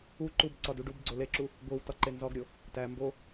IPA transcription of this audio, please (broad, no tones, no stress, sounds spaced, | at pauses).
u ǃ u b ǀ ɒ d u ɖ u b ɡ͡ǀ o l e ǁ u | ɡʷ i w t ɒ ǃ e n z ɒ ɡ ɾʲ o | t æ m b o